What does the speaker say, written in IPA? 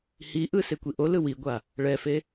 hiʔɯ sekʷiʔolɯ wiɡʷa | ɭɛfe

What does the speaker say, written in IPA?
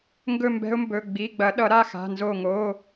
ŋɡɵ˥˧mbɛ̤˦˥ʊ̯mbɵ˩˧˩ ɡ͡bi˩˧˩ɡ͡bɐ˨˩˦ɗʌ˨˩˦ ɾa˩˧˩xa̤˩˧˩ nzo˧˩ ŋo˩˧˩

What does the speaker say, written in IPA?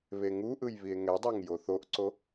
βeŋuʔɯj βie̯ŋɛdˤaŋ joθoʔǀo

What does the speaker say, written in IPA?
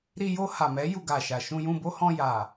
ɾi˧jo˧ha˨mɛ˨˦ ju˧ɡa˨ʃa˨ ʃũ˧jũ˧bo˦hɔ̃˧ ja˨

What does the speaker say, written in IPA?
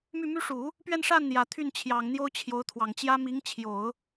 my˥˩my˥ ʂu˨˩˦ | pɥɛ˥˧nʂa˥˩nn̪jä˨˩ t̪ʰy˥˩n t͡ɕʰjɑ˨˩ŋ n̪jo˥ʊ̯t͡ɕʰjo˧˥ʊ̯t̪ʰwɑ˨˩ŋt͡ɕjä˥ mi˧˥ŋt͡ɕʰjo˨˩˦ʊ̯

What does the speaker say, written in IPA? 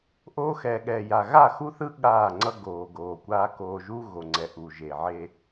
ʔoː˦xɛː˨ɠɛː˨ja˨ ɣa˦˨xu˦θɯ˦ ɠaː˦˨ŋ͡ǀʌ˦ ɡoː˨ɡoː˨kʷaː˦ koː˨ʒu˦ ɣo˨ŋ͡ǀɛ˨ ʔu˨ʒe˨ ʕe˦

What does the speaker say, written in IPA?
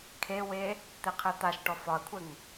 kʰewe | t̪eqʰɘt̪aʃʈɔ fɒɐ̯kʷʰɘŋ

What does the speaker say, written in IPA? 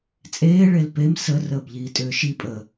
t͡sʼeː ɭelpem sə rəːbʎiːtʼʏːʃi pʼə

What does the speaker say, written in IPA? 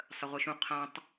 sˤəʁʷɯʃũ qʰãtˤ

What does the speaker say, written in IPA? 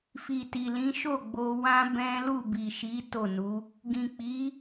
fi˨ti˨lĩ˨˦ ʃo˦˨ ɡ͡bo˧wã˦ bɛ̃˦ lu˦˨bi˨ʃi˨˦ to˦˨nu˨˦ | ɡĩ˨k͡pi˨˦

